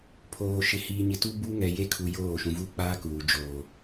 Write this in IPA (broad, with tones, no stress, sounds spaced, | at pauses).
pʰ oː˨ ʃ ɪ˨ h iː˨ ɲ ɪ˨ t u˦ b u˦ ŋ ɛ˨ j e˦ kʰ u˨ j oː˦˨ ʃ ũ˨ v u˦ k͡p aː˦ k uː˨ d͡ʒ oː˨